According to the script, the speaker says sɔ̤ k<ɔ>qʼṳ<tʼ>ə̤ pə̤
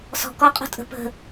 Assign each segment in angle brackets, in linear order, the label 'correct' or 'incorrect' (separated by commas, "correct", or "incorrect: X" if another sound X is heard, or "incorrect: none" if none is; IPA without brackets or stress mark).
correct, correct